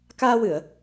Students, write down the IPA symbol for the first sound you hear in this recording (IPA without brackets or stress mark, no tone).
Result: k